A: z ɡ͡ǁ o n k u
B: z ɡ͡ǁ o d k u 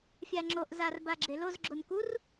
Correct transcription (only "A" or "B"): A